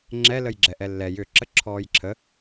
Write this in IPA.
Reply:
ŋ͡ǁ ɛ l ə j ɡ͡ǁ ɛ ʔ ɛ lː ɛ j ʏ ǁ ə ǁʰ ɔː j ǁʰ ə

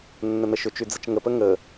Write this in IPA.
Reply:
nː ə n̪ ə ʃ ʏ t͡ʃ y d͡z ə t͡ʃ ŋ ə p ə ŋ ə

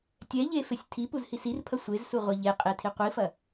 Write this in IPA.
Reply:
tʲ ɛ ʎ e f e sʲ tʰ i p u z h i s i r pʰ ɐ sʷ e z s u ʁʷ ɛ ʎ e qʼ e tʰ i qʷ i f ɐ

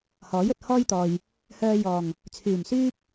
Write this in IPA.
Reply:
h ɔː˨˥ j ɵ˨ t̚ h ɔː˥ j t̪ ɔː˨ j | h œː˧ j ɔː˨˩ ŋ | t͡sʰ yː˨˩ m s yː˥ p̚

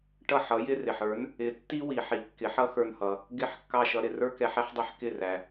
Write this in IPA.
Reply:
ʈ ʌ˥˩ ħ ʌ˩˥ j ɪ˥ r ɪ˩ ħ ə˞˩˥ n | ɪ˩˥ tː i˥ w i˩ ħ i˩˥ kː ɪ˩˥ ħ ʌ˥ x ə˞˧ n h ʌ˩ | ɡ ɪ˥˩ ħ kː ɑ˥˩ ʃ ʌ˧ ɾ ɪ˥˩ r ə˞˥ k ɛ˩˥ ħ ɛ˥ ħ dˤ i˧ ħ k ɪ˥˩ r æ˩

